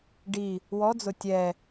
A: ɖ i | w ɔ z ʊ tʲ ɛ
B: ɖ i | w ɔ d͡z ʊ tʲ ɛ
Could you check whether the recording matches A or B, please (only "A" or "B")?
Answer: B